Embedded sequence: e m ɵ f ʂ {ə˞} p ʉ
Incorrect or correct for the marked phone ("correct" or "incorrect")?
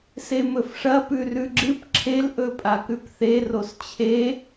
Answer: incorrect